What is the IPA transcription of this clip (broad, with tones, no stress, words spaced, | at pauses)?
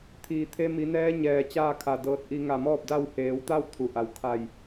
t̪ʰiː˩t̪ʰe˧ mi˩˧nɛː˧˥ɲɛː˩ t͡ɕaː˥˨kʰa˧˩dɤː˧t̚ ʔi˧ ŋa˧˩mɔː˥˨p̚da˥˨w heː˩˧wt̪a˥˨w t̪ʰu˩ʔa˩wkʰa˧˩j